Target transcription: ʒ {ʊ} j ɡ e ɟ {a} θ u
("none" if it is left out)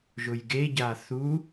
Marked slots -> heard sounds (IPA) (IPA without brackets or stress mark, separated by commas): ʊ, a